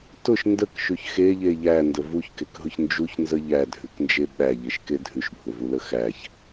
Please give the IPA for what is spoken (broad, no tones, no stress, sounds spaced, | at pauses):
t ʊ ʃ n d ə k ʃ ʉ ç x e ʎ e ʎ æ n d ə v u ç k e k ɦ ʊ ç n d͡ʒ u ç n z ə ʎ æ dʱ ʉ k n d͡ʒ e ɓ æ ʎ e ʃ k e dʱ ʉ ʃ bʱ ʊ v u l ə x æ ç